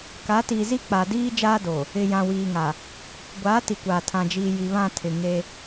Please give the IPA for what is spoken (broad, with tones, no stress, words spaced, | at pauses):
ka˨˦ tiː˨zi˦k͡pa˨diː˦ d͡ʒaː˦do˨ | ɪ˨ jã˨wiː˨ŋa˨ | ɡʷaː˨˦ti˨kʷaː˨ tʰã˨d͡ʒiː˨ ji˨βã˦˨tʰɪ˨ ŋe˦